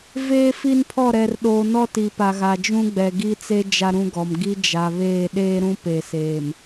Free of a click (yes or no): yes